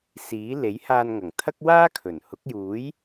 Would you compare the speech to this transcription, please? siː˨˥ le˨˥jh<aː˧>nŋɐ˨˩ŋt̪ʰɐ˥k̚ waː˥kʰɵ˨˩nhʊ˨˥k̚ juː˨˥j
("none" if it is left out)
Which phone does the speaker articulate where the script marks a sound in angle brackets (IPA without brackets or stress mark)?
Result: aː˧